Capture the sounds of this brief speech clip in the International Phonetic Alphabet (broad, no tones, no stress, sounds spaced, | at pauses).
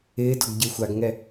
ɪː d ɔ ɡ ɟ ɪː xʷ a ɡ ŋ ɛ